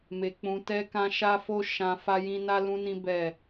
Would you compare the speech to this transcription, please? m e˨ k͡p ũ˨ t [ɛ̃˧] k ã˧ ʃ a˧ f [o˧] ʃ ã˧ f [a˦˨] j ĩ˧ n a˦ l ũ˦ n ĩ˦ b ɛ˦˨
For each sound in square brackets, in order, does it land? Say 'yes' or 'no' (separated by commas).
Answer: no, yes, no